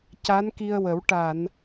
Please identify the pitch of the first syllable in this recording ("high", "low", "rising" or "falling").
rising